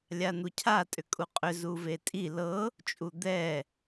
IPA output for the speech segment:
lʲ a n̪ u cʰ a tʼ ʏ kʼ u qʼ ʏ z u v e tʼ i l ɤ | t͡ʃʼ u d̪ ɛ

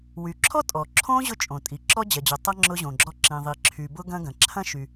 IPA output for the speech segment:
w y˩ ǁʰ ɔ˥ tʼ ɔ˩ ǁʰ õ˥ ʑ ʊ˥ t͡ʃʼ õ˩ tʼ i˩ ǁ ɔ˥ d͡ʑ ɐ˩ d͡ʑ ʊ˩ tˤ ɐ˥ ŋ͡ǁ ʊ˥ ʑ õ˩ ɡ͡ǁ ɔ˥ ǁ ĩ˩ ðˤ i˩ ǁʰ y˩ b ʊ˥ ɡ ɐ̃˥ ɡ ɐ̃˩ ǁʰ ɐ̃˥ ʃ y˩

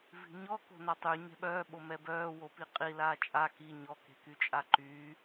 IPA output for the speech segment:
v i̤ ɲ ɔ k o̤ n a tˤ y ɲ ɛ̤ ɓ œː ɓ o m ɛ b œː w o p i qʼ i l aː t͡ʃʼ a k i ɲ ɔ k e̤ k y t͡ʃʼ a ǃ yː

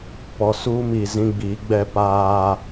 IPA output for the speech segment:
p ɔ˨ s uː˦ m i˨ z ĩ˦ ɡ͡b iː˨˦ ɡ͡b ɛ˦ p aː˦

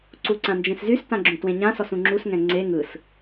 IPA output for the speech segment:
ǀ u ǀ ã n d͡ʒ ẽ s z y s t ã ɡ͡ǁ ũ t w ẽ ɲ ã s ɔ s ũ ŋ͡ǁ u s ŋ ɛ̃ ŋ͡ǀ e ŋ ɯ s

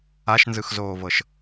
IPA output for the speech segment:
a ʃ n z ɯ x z oː v ɤ ʃ

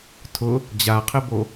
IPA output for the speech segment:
tʰ ʊ | d͡ʑ a qʰ ɪ b o

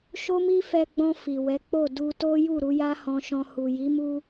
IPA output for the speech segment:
ʃ o˦ m i˦ f ɛ˧ ɡ͡b ɔ̃˧ f i˨ w ɛ˨˦ k͡p o˦˨ d u˧ t o˦ j u˦˨ ɾ u˨˦ j a˦ h ɔ̃˧ ʃ ɔ̃˧ h u˨ j i˨˦ m u˧

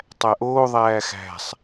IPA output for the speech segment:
tˤ æ ʔ oː ðˤ æː x æ̤ sˤ

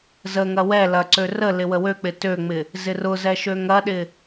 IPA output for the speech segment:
z ə ŋ ɐ w ɛ l ɐ ǀ ø r ə l ɪ w ə w ø k͡p ɪ t ø ŋ͡m ɪ | z ɪ r ʊ z ɛ ʃ ø ŋ ɐ ɗ ɪ

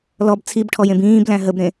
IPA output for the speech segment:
l ɔ b t͡sʰ i b ʈʰ ɔ j ẽ b ĩː b l æ̃ ɦ ə b ɾ ẽ

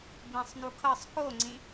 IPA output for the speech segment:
b ĩ sˤ n u kʰ ɤ sˤ k o ŋ͡ǀ ĩ

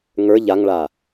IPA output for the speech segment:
ŋ ə˞ ʎ a ŋ ɭ a

